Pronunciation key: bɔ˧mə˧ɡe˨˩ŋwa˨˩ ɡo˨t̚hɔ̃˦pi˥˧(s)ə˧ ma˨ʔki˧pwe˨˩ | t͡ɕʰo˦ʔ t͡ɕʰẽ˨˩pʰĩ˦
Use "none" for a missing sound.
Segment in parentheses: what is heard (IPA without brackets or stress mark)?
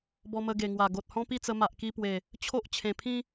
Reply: t͡s